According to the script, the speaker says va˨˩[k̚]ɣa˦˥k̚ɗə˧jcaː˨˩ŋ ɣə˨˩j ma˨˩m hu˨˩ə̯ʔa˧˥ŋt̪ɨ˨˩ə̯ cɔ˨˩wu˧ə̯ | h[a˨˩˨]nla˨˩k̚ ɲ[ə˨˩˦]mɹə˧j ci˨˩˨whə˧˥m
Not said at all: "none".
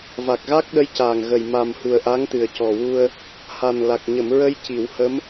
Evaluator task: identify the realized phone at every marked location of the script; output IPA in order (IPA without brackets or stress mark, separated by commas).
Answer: k̚, a˨˩, ə˨˩˨